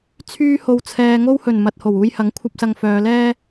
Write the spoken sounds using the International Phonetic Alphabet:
t͡sʰ yː˥ h o˧ w t͡sʰ ɛː˧ ŋ o˧ w h ɵ˨˩ n m ɐ˨ t̚ h o˨˩ w uː˧ j h ɐ˨˥ ŋ kʷʰ ɐ˥ p̚ s ɐ˧ ŋ f œː˨˧ l ɛː˥

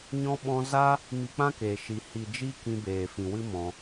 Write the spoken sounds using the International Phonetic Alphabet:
ɲ ɔ̃˧ ɓ ɔ̃˧ z a˦ | m i˧ k͡p ã˦ k eː˨ ʃ i˨ h i˨ d͡ʒ i˦ k ĩ˧ b eː˨ f ĩ˨ w ɨ˦ m ɔ̃˧

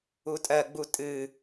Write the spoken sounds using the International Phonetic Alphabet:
u tʼ ɜ ɡ͡b u tʼ ɨ

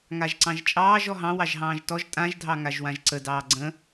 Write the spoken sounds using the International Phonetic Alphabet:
ŋ a ʒ ǀ ɑ̃ ʒ t͡ʃʼ ɑː ʒ ɔ ɦ ɑ̃ w ɑ ʒ ɦ ɑ̃ː ʒ t ɔ ʒ tʼ ã ʒ dʱ ɑ ŋ a ʒ w ã ʒ ǀ ə d ɑː ɡ͡ǀ ə̃

